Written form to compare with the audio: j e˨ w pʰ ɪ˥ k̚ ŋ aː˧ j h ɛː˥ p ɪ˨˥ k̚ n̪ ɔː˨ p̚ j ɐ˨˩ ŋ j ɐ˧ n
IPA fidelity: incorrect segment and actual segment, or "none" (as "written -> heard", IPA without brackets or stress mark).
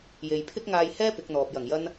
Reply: w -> j